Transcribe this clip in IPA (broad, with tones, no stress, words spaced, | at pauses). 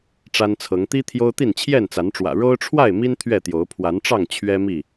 ʈ͡ʂa˦nt͡sʰɤ˨˦ŋ t̪i˦ t̪ʰjo˦ʊ̯t̪i˥˨n t͡ɕʰjɛ˥˨nt͡sa˨˦nʈ͡ʂwä̰˨˩ ɻo˦ʊ̯ʈ͡ʂʰwa˥˨ɪ̯mi˦n t̪ʰɥɛ˥˨t̪jo˨˦ʊ̯ pʰwa˨˦nʈ͡ʂɑ˥˨ŋ t͡ɕʰɥɛ˦ mi˥˨